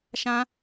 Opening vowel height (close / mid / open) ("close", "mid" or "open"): open